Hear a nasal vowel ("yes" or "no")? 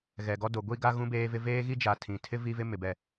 yes